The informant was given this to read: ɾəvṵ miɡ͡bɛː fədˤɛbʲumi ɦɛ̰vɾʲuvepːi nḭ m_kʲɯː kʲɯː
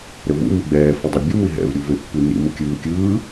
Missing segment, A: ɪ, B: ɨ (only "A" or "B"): A